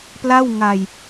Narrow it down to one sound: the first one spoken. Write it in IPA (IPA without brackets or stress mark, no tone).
p